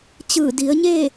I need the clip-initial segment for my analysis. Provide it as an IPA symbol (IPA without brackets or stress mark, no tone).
t͡ɕ